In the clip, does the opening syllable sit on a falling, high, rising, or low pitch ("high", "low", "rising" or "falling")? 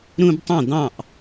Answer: high